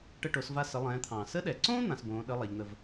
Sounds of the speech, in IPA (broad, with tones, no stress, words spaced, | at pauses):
ʈə˧ʈo˩˧sva˧ sə˩˧lˠɛ̃ː˩˧t̪ʰɑ̃ː˩ sə˧˥ɗɛ˩ǀõː˥ n̪ã˩˧sbõː˩˧ ɗə˧˥ lˠa˩˧ʎn̪ə˧v